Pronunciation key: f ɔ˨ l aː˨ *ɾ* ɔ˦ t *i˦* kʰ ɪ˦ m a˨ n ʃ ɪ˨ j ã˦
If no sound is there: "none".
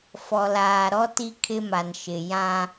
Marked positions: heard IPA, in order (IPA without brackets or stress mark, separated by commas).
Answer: ɾ, i˦